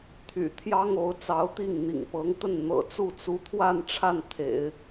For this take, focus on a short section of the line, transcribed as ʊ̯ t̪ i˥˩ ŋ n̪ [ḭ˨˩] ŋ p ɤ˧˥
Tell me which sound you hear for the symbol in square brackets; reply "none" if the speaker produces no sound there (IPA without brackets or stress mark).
ḭ˨˩